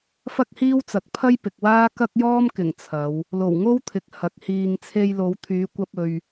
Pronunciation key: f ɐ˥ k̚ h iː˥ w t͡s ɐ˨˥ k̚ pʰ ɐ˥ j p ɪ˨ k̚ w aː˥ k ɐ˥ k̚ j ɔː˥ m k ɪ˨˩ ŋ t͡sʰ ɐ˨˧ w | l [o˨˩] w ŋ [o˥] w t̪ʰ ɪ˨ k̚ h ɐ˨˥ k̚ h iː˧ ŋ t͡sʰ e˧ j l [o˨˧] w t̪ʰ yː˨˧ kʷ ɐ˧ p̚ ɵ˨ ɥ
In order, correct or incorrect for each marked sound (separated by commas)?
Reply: correct, correct, correct